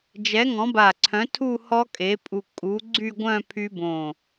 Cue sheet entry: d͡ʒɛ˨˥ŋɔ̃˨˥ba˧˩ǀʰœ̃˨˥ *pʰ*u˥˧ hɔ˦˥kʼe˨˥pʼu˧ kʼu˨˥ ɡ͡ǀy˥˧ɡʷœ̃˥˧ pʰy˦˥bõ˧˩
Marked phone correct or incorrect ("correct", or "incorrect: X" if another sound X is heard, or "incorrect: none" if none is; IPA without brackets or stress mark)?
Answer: incorrect: tʰ